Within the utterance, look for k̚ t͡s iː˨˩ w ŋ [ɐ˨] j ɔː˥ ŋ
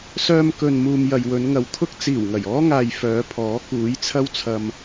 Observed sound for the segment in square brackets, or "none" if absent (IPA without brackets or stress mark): ɐ˨˩